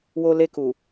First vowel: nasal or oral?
oral